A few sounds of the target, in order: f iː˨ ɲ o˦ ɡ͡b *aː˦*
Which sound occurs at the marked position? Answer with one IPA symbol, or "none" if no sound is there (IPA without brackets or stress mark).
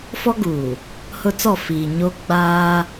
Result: aː˦